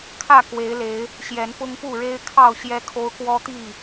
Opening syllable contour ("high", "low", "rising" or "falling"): falling